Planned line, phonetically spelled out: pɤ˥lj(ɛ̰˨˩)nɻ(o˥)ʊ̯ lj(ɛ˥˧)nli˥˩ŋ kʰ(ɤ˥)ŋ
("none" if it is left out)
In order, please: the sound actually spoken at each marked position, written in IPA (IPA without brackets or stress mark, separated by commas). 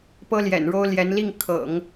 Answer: ɛ̰˨˩, o˥, ɛ˧˥, ɤ̰˨˩˦